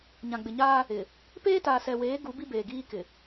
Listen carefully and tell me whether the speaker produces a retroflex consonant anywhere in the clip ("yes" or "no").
no